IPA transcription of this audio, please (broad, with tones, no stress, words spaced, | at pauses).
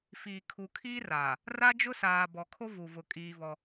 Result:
fiː˨kʰu˨kʰiː˦raː˨ | ra˦d͡ʒʊ˦saː˨ bɔ˨kʰo˦vu˨vʊ˨ kʼiː˦vɔ˦